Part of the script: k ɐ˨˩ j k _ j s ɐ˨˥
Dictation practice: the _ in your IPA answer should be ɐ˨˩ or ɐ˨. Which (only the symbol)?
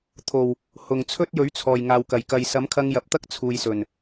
ɐ˨